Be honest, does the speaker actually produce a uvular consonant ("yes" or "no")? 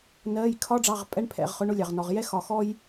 yes